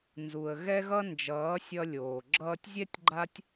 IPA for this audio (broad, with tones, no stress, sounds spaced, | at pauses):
n z u˨ ə̯ ɣ ɛ˦ ɣ ʌ˦ n d͡ʒ ʌː˨˦ sʲ ʌ˧ lʲ oː˨ ɡ͡ǁ ʌː˧ tʲ zʲ ɛ˦ tʲ ɡ͡ǃ a˦ tʲ